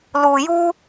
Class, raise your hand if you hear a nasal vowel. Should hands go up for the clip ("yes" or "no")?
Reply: no